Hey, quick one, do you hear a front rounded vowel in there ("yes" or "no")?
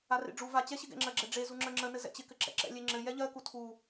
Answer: no